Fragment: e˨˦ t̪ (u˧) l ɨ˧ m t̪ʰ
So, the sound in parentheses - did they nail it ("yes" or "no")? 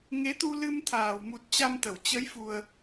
yes